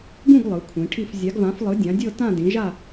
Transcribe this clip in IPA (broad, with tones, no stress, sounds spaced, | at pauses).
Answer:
ɡ ũ˥˧ ɡ lˠ ɯ˨˥ kʷʰ ĩ˨˥ ʈʰ i˥˧ f zʲ a˨˥ ɡ v ã˨˥ f lˠ ɯ˨˥ dʲ ã˨˥ dʲ ɤ˥˧ t ã˥˧ d ĩ˨˥ ʒ a˥˧